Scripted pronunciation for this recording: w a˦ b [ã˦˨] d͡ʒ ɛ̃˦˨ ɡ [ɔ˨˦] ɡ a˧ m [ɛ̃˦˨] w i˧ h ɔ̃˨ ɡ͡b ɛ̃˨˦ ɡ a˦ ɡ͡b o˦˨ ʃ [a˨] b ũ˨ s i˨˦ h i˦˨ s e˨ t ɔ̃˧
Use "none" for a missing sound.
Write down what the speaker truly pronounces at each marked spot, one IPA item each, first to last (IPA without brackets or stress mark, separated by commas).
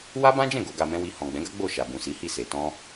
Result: ã˦, o˨˦, ɛ̃˦, a˨